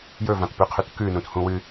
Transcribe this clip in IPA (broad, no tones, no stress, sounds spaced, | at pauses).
j ɵ v ã t p ʉ qʰ ʉ t k ʉ n ũ t h ũ w ɨ